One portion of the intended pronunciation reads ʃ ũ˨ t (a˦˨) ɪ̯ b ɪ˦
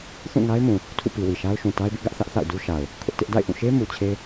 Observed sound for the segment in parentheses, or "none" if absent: a˦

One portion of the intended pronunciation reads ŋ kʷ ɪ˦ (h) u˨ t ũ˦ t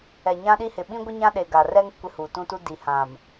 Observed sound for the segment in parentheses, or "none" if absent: h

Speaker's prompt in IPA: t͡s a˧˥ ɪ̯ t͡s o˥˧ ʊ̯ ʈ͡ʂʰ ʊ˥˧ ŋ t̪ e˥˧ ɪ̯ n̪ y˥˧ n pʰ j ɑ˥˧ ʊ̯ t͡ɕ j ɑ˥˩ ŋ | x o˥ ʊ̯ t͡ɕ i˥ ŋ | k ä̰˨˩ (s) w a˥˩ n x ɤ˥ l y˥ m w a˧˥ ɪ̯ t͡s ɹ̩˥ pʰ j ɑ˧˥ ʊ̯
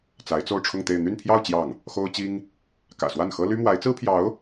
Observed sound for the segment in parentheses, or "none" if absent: s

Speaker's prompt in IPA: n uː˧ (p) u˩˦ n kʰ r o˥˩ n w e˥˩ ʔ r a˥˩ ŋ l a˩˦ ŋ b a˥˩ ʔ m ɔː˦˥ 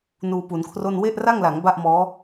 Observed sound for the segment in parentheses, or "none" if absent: p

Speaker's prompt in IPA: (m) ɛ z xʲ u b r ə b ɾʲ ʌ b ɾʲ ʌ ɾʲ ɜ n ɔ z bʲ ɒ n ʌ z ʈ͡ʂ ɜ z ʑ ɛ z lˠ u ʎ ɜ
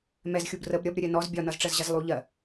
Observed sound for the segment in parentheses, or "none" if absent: m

